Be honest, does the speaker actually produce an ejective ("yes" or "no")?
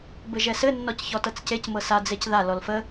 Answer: no